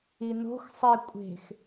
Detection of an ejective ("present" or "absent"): present